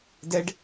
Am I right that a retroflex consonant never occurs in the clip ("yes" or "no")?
no